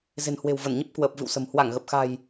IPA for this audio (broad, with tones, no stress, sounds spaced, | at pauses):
z e̤˨˩ n h w e̤˨˩ w v ə˧˩ n ɲ ə˦˥ p̚ k w əː˨˩ p̚ v ɨ̰˧˨ w s ə̤˨˩ m h w a˧˩ ŋ ɣ ə˨˩ p̚ x a̤˨˩ j